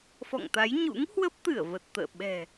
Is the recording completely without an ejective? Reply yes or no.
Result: yes